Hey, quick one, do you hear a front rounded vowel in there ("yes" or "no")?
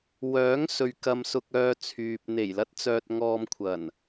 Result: yes